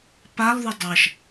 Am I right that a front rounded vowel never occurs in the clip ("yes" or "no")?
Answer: no